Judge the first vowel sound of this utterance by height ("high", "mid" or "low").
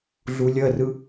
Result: high